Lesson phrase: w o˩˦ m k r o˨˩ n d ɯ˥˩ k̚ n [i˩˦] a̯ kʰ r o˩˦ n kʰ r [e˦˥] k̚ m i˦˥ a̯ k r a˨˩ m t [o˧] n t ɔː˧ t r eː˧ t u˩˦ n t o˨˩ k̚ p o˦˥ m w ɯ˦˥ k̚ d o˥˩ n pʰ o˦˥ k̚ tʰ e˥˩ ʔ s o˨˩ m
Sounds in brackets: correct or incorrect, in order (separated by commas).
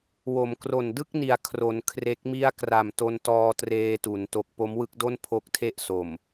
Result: incorrect, correct, correct